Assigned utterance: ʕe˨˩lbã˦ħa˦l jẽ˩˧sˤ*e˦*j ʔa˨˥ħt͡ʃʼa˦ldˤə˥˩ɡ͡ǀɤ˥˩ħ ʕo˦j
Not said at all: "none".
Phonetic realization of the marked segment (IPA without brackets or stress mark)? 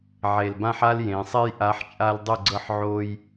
e˦